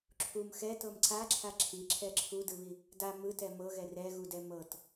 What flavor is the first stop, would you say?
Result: click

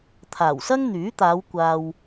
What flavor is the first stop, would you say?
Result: aspirated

